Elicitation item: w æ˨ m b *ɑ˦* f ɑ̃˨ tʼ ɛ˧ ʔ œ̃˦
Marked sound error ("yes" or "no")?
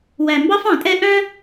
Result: no